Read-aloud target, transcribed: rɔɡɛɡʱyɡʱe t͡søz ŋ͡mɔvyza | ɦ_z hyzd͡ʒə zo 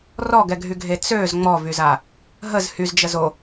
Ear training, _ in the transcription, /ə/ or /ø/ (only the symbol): ə